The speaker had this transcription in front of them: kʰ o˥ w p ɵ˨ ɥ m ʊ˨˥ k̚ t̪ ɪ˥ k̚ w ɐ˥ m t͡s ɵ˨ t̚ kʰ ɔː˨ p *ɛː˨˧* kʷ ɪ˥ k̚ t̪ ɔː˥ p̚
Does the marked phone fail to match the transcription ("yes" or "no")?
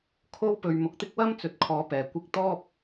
yes